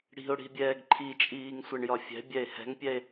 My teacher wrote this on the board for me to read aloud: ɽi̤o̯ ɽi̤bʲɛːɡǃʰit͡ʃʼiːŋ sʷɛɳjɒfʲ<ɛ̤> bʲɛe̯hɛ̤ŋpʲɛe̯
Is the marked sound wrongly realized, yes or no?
no